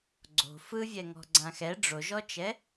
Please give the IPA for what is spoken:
ɡ͡ǀ o̤ f ɯ vʲ ɛ ŋ ɔ̤ ɡ͡ǀ ã x ɛ ɖ͡ʐ o ʒ ɔ t͡ʃ ɛ

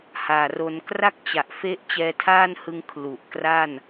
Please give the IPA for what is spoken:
h aː˨˩ r o˧ n k r a˥˩ k̚ t͡ɕ a˨˩ ʔ f e˦˥ ʔ t͡ɕ ɛː˧ tʰ aː˥˩ n h ɯ˧ ŋ kʰ l u˨˩ ʔ k r a˥˩ n

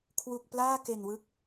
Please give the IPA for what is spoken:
kʰ w u˨˩ k̚ p l aː˥˩ k e˨˩ n w ɯ˦˥ k̚

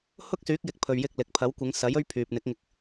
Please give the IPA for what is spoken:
h ʊ˥ k̚ s yː˨˥ k̚ j ɪ˨˥ k̚ pʰ ɵ˨ ɥ j ɪ˧ k̚ l ɪ˨ k̚ pʰ ɐ˨˥ w kʷ ɪ˨˧ ŋ s ɐ˨˥ j ɵ˥ ɥ pʰ yː˨ p̚ n̪ ɪ˨˥ k̚ ŋ ɪ˨ k̚

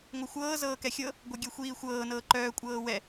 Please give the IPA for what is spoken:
ŋʷ œ xʷ ɤː z ɤː k ɛ xʲ ɤ | ɡʷ œ ɡʲ ɛ xʷ iː xʷ ɤː n ɤː ǃ œː kʷʼ ɤː w ɛ

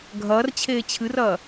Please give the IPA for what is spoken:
ɡʱ ɐː r t͡ɕʰ eː t͡ɕʰ ɨ r ɐː

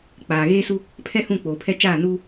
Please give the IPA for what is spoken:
k͡p aː˨ ɣ eː˦ s u˦ | pʰ ɛ˦ h ũ˦˨ k͡p oː˨ pʰ ɛ˦ t͡ʃ aː˦˨ n uː˦

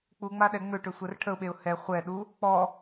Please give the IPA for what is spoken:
k͡p u ŋ͡m a ɗ ɛ ŋ͡m ø ʈ ø sʷ ɛ r ʈʰ ə ʊ̯ ɓ e ʊ̯ h ɛ χʷ ɛ ɗ u | k͡p ɔ

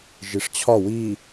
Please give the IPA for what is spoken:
ʒ i ʂ t͡ɕʰ ɒ w i

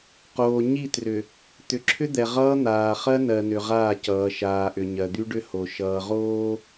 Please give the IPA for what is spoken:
q oː˨ ɲ i˦˨ t r ʏ˨ | t̪ ʏ˨ ǁʰ ʏ˦ d̪ ɛ˨ ʁ ʌː˦ n̪ aː˨ χ ɜ˦ n ɜ˨ n ʏ˨ ʁ aː˦˨ c ʌː˨ ʃ aː˨ ʔ ʏ˨ ɲ ɜ˨ d̪ y˦ ɖ ʏ˦ h o˨ ʃ ʌː˨ ʁ oː˦

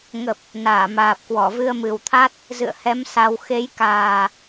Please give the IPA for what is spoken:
ŋ ə˨˩ p̚ | n aː˧˩ m aː˨˩ p̚ k w ɔ˧˩ v ɨ˧ ə̯ m ɨ˨˩ w t̪ʰ a˦˥ t̚ | z ɨ̰˧˨ ə̯ h ɛ˨˦ m s a˧ w x e˨˦ j k aː˨˩

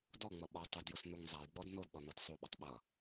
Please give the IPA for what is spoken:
d ɔ ŋ͡m ʌ ɓ ɔ tˤ ʊ d j ʊ s n u ŋ zˤ a j ɡ͡b ɔ d n o d ɗ ɔ n ʌ d sˤ o ɓ ɐ tˤ ɓ ʌ

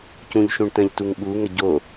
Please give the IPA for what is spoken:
c ũ ʎ ʃ ũ ɳ t ə̃ ʎ t u ŋ ɓ u ŋ ə ɟ o

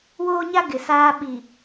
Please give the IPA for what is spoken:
w oː˦ ɲ a˦ ɡ ɪ˨ s aː˦ ɓ i˨

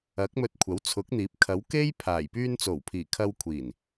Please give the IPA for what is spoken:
ɐ˨˥ k̚ m ɵ˧ t̚ kʷʰ ɐ˨˥ w t͡sʰ ʊ˨˥ k̚ n̪ iː˨˥ p̚ kʰ ɐ˨˥ w k e˥ j pʰ aː˨˩ j p yː˧ n t͡s o˨˩ w pʰ iː˨˩ kʰ ɐ˧ w kʷʰ iː˨˩ n

